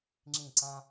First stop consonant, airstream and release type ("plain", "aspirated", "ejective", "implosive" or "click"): click